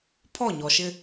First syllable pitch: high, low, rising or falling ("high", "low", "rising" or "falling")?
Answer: falling